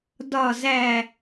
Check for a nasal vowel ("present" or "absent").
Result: absent